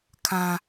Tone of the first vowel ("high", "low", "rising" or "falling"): high